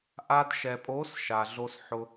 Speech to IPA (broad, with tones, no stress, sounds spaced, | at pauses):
ʔ a˧ d ʃ ɛ˨ pʼ o˨˦ s ʃ a˨ ɮ o˧ s ħ ʊ˧